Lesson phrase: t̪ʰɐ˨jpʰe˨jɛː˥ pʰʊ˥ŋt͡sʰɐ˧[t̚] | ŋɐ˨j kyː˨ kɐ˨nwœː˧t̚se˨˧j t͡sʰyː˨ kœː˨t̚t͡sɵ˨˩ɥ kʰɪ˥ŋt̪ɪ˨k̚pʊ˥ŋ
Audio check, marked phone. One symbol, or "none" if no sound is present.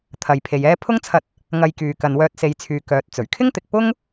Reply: t̚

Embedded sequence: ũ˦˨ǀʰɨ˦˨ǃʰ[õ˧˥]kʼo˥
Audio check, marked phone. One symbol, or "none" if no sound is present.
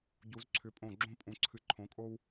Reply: õ˧˥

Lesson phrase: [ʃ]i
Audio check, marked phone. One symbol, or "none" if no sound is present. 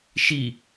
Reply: ʃ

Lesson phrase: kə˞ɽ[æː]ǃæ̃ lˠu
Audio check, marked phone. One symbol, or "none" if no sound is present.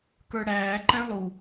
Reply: æː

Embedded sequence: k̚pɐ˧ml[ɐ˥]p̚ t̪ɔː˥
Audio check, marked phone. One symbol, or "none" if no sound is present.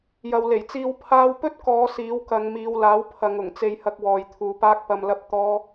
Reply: ɐ˥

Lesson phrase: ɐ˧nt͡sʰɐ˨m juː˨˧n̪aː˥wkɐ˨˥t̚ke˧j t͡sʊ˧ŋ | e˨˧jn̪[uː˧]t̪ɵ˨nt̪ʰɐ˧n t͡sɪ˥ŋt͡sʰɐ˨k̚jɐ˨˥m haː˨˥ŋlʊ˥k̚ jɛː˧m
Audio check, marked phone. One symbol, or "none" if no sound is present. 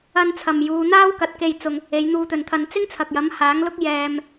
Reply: uː˧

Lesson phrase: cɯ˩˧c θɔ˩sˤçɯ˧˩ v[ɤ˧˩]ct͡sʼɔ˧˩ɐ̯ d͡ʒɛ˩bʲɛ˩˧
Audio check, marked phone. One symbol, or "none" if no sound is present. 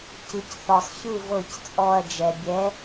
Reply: ɤ˧˩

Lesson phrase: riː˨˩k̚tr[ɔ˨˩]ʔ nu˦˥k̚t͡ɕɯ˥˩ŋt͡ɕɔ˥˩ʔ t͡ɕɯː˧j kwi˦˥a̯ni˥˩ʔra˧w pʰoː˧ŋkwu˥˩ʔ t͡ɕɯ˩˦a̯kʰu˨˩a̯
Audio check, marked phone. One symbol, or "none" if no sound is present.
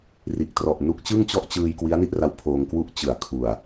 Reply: ɔ˨˩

